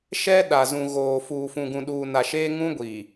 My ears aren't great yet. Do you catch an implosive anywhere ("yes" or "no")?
yes